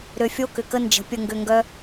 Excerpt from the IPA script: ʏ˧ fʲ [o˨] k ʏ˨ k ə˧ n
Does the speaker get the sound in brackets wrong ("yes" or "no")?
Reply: yes